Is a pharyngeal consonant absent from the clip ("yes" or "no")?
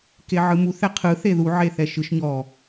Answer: no